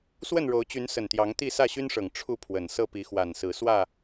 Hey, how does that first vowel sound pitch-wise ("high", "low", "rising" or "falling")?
falling